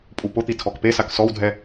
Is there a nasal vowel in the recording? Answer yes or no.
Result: no